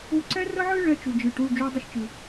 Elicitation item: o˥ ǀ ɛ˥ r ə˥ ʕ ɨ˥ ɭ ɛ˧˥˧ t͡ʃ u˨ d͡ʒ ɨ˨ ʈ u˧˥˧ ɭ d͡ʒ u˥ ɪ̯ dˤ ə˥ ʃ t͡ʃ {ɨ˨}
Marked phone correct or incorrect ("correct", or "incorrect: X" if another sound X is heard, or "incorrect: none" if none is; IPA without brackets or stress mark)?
correct